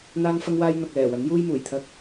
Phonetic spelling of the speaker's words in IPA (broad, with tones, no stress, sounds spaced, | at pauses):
n̪ aː˥ ŋ f ɐ˥ ŋ w aː˥ j n̪ ɐ˨ k̚ l ɛː˨˩ w ɐ˨˥ n j uː˥ j m uː˨˩ j t̪ʰ ɐ˥ k̚